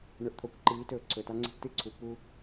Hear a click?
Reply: yes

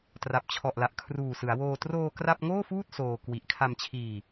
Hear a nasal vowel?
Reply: no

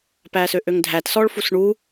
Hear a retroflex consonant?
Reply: yes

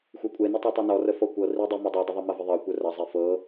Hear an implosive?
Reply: no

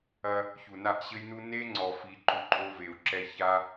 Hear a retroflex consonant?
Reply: no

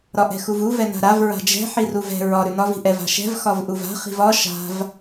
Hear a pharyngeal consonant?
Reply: yes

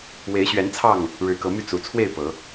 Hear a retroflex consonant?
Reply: yes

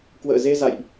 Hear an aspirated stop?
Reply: no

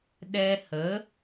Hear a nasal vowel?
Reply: no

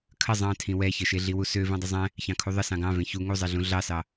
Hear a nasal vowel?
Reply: yes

